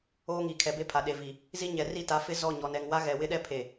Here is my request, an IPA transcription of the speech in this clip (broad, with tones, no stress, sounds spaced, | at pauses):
oː˦ ŋ i˨ kʰ ɛ˨ b e˦ pʰ a˨ ɗ e˨ v i˨ | z i˦ ɲ ɛ˨ r i˦˨ t a˨˦ f ɪ˦ z ɔ˦˨ ɲ ɔ˨ n ɛ˨ ŋ w a˦ ɣ ɛ˨ w ɪ˦ ɗ ɛ˦ pʰ e˨